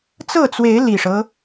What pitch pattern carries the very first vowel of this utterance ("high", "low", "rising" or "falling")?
falling